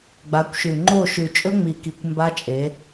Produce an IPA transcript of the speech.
ɡ͡ba˨˦kʷʃʉ˨ ŋ͡ǃo˦˨ʃʉ˨ t͡ʃʼɵ˦ŋ͡mi˨ki˨kʷ mba˦t͡ʃʼe˨˦

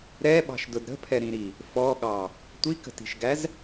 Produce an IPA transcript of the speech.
ɾɛɓɑ̤ʃdʊd ɾə̤pʰɛɾĩɾi | fɔɠɑ | tʷikə̤ti̤ʃɡæz

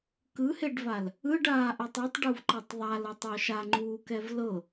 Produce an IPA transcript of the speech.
kɯheɖval | ɯɖaːʔɛtˤ itˤɖuvǃɛtˤ ðˤalɤtˤo ʃaŋ͡ǃuːkɛv lɤ

